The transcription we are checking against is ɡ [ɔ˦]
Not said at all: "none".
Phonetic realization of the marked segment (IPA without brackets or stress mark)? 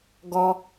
ɔ˦